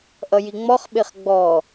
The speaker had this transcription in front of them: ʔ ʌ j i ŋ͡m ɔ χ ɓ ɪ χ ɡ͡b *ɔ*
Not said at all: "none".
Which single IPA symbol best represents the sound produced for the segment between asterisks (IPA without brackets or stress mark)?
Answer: ɔ